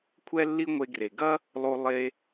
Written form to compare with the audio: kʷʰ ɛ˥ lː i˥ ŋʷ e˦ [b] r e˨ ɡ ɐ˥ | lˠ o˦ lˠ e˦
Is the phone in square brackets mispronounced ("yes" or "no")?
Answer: yes